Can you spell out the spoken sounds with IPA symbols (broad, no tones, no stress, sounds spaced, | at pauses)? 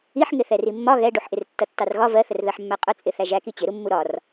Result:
i ħ ŋ ɪ θ ɛ r i mː ɒ ɣ ɛ ɖ u ħ ʔ ɪ r tː ʌ tː ɑ r ɣ ɒ v ɜ θ ə r ð ɜ ħ mː æ qʼ ʊ t͡sʼ ɪ θ æ ʒ æ k i t͡ɕ ɪ ɾ u mː u ɾ ɒ r